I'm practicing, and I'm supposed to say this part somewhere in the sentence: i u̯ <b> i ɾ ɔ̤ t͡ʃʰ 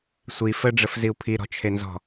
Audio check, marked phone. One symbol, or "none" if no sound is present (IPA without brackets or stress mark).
pʰ